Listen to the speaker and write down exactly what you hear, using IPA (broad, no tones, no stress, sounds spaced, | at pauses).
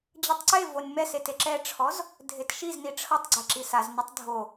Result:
d͡ʑ ɯ tˤ ǀ e v o nʲ m ɛ s e t e ǁ ɛ ʈ͡ʂʰ ɔ z | dʱ e t ʃ i z n i ʈ͡ʂʰ ɤ tˤ ɡ͡ǀ e ǁ i s a z n ɯ tˤ dʱ o